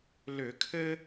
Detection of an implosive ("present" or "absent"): absent